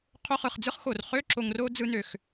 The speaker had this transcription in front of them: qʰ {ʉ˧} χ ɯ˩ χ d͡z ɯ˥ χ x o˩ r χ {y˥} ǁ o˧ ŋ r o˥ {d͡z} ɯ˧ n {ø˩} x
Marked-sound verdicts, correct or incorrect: incorrect, incorrect, correct, correct

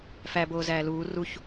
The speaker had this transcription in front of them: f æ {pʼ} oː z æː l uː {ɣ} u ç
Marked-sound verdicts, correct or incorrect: incorrect, incorrect

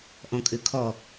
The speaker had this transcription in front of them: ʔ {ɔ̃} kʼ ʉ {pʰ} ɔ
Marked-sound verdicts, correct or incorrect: correct, incorrect

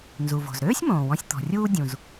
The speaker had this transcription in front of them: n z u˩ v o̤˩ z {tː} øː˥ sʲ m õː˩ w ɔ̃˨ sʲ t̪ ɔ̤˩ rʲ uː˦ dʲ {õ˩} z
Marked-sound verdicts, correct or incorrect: incorrect, incorrect

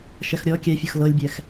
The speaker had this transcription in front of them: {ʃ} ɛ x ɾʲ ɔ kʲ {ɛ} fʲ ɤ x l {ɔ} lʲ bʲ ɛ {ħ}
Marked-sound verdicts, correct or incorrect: correct, correct, incorrect, incorrect

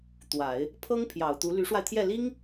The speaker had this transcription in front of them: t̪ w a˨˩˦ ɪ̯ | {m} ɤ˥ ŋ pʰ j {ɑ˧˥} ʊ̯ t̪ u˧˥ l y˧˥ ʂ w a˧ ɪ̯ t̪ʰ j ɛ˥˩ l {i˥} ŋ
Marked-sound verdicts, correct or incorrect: incorrect, incorrect, correct

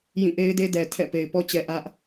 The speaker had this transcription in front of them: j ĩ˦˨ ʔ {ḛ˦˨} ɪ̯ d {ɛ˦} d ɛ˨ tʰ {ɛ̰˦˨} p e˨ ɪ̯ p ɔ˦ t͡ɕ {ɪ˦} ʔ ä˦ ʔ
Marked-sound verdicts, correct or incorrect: incorrect, incorrect, correct, incorrect

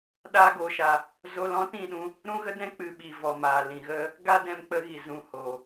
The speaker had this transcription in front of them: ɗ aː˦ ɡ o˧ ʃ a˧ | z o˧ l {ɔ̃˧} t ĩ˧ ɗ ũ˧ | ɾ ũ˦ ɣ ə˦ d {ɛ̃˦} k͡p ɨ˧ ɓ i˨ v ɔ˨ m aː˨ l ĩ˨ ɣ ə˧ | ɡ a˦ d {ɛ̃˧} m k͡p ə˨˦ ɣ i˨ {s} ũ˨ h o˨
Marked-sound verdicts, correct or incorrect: incorrect, correct, correct, incorrect

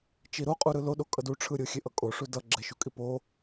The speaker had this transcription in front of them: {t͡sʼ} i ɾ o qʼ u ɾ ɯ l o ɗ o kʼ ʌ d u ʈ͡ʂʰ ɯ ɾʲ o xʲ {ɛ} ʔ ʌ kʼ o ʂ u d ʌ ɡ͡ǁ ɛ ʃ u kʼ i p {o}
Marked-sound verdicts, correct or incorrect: incorrect, incorrect, correct

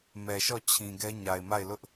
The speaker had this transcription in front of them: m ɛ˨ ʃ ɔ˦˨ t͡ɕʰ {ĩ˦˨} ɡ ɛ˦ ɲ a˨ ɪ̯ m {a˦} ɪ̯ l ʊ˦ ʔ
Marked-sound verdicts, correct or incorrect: incorrect, incorrect

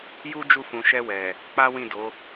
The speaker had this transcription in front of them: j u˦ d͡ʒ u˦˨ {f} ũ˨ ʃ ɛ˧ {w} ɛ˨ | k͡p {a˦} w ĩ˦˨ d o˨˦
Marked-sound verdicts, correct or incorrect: correct, correct, correct

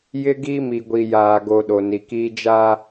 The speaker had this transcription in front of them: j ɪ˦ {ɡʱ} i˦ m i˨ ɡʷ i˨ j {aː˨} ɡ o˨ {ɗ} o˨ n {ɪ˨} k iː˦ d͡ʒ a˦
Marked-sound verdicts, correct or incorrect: incorrect, correct, correct, incorrect

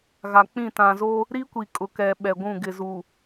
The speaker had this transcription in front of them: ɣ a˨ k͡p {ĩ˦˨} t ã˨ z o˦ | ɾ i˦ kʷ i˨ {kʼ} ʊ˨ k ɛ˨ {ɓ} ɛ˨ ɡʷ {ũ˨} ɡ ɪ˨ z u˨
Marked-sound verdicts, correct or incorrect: correct, correct, correct, incorrect

